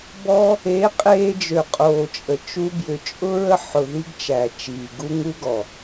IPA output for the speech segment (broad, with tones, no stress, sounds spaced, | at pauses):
b ɔ˦ | e˨˦ qʼ eː˧ d͡ʒ ø˨ qʼ oː˨ t͡ʃʼ ə˨ t͡ʃ u˧ b j ʏ˨ t͡ʃʼ ʊ˦ ɹ ə˦ ħ ʊ˨ ð i˦ ɡ t͡ʃ æ˨ t͡ʃ iː˨ ɡ u˦ ŋ u˦ ɡ ɔ˨